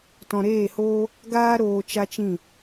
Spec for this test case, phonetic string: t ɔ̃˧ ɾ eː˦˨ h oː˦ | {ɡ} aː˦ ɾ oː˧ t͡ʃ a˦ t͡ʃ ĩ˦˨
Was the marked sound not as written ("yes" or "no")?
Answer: no